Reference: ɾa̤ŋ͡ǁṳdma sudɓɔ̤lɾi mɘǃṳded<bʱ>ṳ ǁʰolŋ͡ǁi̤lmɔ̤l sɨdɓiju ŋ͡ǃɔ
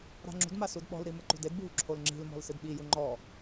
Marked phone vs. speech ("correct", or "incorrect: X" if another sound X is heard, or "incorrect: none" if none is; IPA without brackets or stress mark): correct